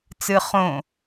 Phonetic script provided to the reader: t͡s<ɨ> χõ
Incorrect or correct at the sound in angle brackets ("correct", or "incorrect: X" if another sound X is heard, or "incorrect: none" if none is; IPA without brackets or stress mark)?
correct